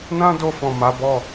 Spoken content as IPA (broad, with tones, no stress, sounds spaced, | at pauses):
n ã˦ d o˧ f ɔ̃˨ m a˨˦ b ɔ˦˨